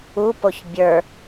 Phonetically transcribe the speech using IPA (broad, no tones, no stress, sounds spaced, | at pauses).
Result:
u p o ç bʲ ə˞